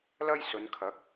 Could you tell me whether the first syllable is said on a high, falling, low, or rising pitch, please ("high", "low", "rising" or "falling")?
high